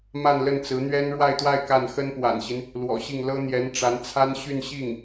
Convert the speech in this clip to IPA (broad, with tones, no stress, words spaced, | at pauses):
ma˥˧nlə˥˩nt͡sɹ̩˧˥n̪ɥɛ˥n ɻwa˥˧ɪ̯t̪wa˥˧ɪ̯ ka˥˩n xə˥npwa̰˨˩nɕi˦n | lwɔ̰˨˩ɕi˥˩ŋ lɤ˥n̪jɛ˧˥nʈ͡ʂa˧˥n t͡sʰa˥n ɕy˥˧nɕi˥˩ŋ